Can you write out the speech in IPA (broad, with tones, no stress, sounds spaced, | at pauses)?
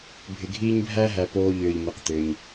bʱ ɪ˨ ɡʱ iː˦ ɲ bʱ æ˥ ɦ æ˨ p oː˨ ʎ ʏː˩ ʎ m ɪ˩ q t̪ ʏː˩ ɲ